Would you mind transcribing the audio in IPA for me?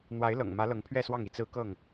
n̪ w a˨˦ ɪ̯ l ɤ̰˨˩ ŋ m ä˨˦ l ɤ˨˦ ŋ pʰ ɥ ɛ˥˨ s w ɑ˥˨ ŋ i˥˨ t͡s ɹ̩˦ k ɤ˥˨ ŋ

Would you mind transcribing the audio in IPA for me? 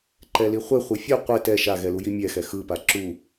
ǃ ɛ l i χʷ e χʷ i fʲ u qʷ e t ɛ ʃ a ɣ ɛ l u j i mʲ ɛ x ɛ x ɯ p a ǁ u

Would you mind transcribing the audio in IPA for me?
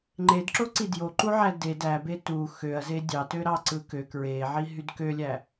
ŋ͡ǃ e d ǁ o ǀ i d j o ǃ u ʕ æ d e d æ b e t u x ø ɐ̯ z e dʲ ɑ t ø ɾ ɑ ǀ ɯ k ø k ɹ e ʕ i ɦ y d k ø lʲ æ

